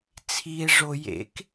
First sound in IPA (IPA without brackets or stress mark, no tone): t͡sʰ